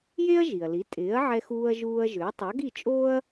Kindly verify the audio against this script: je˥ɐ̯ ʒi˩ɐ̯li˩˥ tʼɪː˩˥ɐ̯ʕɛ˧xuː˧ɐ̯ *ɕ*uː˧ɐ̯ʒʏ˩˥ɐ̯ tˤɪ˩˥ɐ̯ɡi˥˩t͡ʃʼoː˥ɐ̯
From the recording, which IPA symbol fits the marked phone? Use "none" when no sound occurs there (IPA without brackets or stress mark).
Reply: ʒ